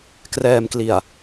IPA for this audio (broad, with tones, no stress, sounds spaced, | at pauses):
k r ɛː˧ m k l i˨˩ a̯